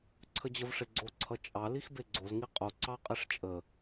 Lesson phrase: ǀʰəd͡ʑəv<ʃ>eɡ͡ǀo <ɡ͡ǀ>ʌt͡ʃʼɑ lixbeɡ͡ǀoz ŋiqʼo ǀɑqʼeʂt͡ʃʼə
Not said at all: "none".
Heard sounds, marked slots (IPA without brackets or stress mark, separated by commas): ʂ, ǀʰ